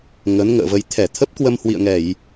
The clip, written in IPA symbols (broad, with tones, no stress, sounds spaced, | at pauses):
ŋ ə˨˦ n ŋ ə̰ː˧˨ v ə˧ j t̪ʰ ɛ˧˩ t̪ʰ ə˦˥ p̚ k w ə˧ m h w ḭ˧˨ ə̯ ŋ ɛ˧˩˨ j